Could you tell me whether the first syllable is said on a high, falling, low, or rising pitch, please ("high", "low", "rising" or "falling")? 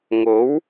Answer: rising